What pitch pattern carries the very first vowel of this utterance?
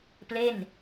falling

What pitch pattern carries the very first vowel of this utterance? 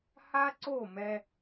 high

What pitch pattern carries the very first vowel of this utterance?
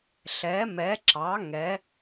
rising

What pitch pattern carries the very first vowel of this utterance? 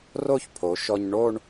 falling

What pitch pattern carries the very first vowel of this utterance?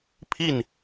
falling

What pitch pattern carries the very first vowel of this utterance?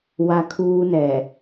high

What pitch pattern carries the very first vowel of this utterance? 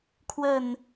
falling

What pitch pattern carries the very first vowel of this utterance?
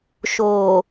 low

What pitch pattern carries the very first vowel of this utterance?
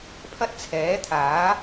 high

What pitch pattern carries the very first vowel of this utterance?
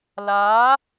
rising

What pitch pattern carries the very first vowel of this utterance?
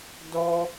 high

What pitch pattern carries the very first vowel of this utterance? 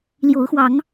rising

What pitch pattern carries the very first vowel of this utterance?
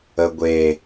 low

